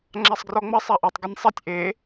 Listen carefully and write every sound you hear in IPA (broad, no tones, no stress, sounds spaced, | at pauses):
ŋ͡ǁ a sˤ ɡ r ɔ ŋ͡m ɐ sˤ a ʔ o tˤ ɡ ɨ nʲ sˤ ɐ tʲ ʔ e